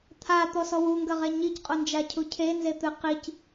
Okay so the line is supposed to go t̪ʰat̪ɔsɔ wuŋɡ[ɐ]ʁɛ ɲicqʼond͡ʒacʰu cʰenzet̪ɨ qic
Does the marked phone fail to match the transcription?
no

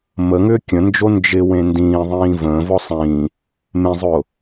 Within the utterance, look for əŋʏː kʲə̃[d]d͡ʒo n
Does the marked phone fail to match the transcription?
yes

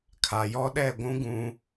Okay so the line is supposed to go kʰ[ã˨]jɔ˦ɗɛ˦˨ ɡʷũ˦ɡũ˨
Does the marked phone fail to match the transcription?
yes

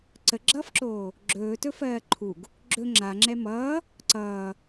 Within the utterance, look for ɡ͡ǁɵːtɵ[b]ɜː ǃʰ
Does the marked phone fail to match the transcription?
yes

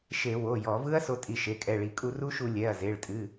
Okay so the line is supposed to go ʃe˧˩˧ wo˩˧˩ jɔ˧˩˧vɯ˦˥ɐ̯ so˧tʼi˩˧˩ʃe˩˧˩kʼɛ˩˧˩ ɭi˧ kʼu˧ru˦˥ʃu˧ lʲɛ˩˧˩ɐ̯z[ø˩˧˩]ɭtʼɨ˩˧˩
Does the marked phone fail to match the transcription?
yes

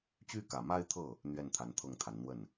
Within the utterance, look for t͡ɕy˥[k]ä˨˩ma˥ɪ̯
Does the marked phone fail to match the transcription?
no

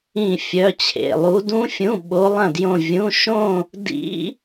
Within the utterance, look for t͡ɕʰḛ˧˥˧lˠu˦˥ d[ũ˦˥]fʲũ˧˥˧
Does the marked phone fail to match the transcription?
no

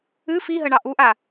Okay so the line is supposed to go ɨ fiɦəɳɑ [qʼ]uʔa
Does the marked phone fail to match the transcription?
yes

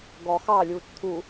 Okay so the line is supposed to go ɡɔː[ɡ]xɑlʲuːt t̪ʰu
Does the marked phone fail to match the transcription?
yes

